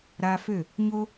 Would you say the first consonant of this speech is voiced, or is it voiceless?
voiced